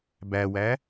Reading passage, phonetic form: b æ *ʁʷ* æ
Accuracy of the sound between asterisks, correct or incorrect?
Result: incorrect